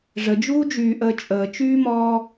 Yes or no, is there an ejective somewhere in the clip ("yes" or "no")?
yes